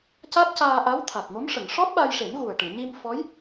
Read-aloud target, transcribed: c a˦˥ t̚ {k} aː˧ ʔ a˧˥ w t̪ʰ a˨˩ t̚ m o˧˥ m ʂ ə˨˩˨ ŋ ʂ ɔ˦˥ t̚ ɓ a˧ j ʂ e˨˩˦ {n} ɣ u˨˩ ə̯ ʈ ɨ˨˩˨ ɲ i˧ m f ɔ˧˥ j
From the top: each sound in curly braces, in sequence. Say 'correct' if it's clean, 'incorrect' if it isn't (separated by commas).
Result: incorrect, correct